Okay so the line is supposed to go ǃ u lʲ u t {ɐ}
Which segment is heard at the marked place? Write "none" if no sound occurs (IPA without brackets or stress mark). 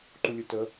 ə